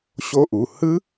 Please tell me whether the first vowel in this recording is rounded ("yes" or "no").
yes